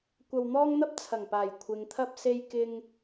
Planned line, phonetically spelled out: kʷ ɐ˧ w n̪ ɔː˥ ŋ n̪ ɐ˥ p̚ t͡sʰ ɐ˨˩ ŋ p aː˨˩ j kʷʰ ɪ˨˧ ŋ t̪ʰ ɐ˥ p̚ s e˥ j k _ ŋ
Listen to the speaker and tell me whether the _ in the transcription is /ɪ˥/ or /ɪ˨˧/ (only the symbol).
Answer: ɪ˥